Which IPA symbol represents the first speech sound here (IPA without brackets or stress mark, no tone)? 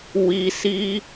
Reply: w